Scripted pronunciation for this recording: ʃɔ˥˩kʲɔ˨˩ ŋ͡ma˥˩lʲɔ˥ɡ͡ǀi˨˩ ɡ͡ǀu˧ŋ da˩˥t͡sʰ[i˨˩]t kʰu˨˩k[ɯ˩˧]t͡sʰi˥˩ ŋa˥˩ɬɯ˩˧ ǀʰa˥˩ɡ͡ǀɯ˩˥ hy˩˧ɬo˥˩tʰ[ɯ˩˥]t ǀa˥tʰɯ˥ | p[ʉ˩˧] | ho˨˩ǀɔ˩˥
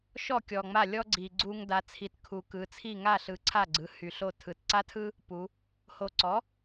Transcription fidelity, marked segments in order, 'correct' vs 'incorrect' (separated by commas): correct, correct, correct, incorrect